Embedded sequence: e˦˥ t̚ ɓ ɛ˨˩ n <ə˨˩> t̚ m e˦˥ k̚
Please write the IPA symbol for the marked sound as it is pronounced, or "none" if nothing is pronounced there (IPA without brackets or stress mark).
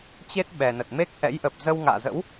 ə˨˩